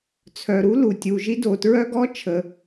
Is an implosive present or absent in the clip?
absent